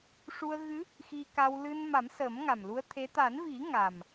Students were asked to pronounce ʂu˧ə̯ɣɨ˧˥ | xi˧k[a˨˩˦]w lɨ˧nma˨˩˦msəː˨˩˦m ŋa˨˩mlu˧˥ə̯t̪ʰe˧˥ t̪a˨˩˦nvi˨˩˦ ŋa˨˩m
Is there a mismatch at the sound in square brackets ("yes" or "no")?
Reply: yes